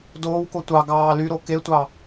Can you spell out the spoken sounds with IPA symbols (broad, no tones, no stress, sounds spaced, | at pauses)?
d oː w k o tʷ ɑ ɡ ɑː l y ɾ o k e tʷ ɑ